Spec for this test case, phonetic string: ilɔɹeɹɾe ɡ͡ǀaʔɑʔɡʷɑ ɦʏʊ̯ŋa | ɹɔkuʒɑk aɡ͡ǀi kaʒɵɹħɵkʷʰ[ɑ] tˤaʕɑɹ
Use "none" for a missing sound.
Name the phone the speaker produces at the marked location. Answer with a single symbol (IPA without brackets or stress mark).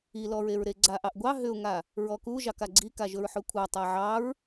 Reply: ɑ